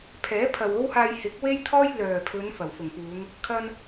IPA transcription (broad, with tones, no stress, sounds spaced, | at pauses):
pʰ ɛː˨˥ pʰ ɐ˨ w o˥ w h aː˧ j h ɪ˨˥ k̚ w e˥ j t̪ʰ ɔː˥ j l œː˨˩ pʰ ɵ˨˧ n f ɐ˨˩ w f ʊ˨˩ ŋ p uː˨˧ ŋ | kʰ ɐ˧ n